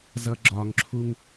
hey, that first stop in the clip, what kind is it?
click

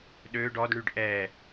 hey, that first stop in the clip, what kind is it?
implosive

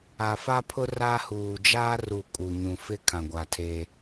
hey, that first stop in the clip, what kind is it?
aspirated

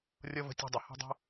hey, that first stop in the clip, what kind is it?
plain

